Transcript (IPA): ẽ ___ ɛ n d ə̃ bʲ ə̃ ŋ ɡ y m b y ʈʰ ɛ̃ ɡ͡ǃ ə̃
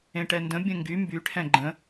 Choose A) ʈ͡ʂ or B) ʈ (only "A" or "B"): B